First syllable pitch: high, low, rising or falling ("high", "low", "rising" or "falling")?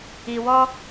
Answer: low